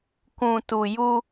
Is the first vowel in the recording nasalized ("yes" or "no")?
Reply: yes